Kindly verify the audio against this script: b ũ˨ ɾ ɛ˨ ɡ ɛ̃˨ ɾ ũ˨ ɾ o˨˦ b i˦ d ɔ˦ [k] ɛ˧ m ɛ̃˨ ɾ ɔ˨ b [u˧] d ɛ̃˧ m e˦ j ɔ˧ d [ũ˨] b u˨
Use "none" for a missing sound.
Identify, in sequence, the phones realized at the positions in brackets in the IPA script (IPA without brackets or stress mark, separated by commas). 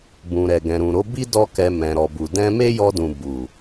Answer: k, u˨, ũ˨